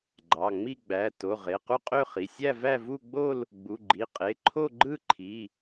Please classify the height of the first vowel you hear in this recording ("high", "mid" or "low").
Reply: low